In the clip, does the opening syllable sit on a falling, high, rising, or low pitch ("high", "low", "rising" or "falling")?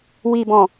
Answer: low